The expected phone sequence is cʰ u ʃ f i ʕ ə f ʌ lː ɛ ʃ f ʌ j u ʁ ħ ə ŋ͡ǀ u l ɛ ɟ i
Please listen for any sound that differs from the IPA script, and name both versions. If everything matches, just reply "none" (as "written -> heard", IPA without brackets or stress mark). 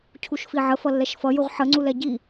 none